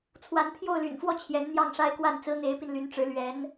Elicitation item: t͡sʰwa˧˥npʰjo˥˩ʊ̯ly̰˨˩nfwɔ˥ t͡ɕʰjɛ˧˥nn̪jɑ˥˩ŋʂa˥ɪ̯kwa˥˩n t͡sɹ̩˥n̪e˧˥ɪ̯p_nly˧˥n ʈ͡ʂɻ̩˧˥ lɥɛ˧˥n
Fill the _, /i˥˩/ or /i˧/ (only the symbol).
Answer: i˧